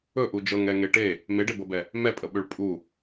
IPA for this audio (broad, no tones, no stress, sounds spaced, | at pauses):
ɵ ʔ u d͡ʒ ɤ ŋ ɛ ŋ e ʈ e | m e ɖ e b ɤ b ɛ | m ɛ pʼ ə ɓ ø ɭ pʼ u